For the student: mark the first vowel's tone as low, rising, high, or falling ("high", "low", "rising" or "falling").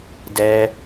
high